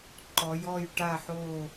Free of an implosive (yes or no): yes